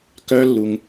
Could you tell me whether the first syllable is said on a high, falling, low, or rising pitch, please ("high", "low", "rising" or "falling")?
high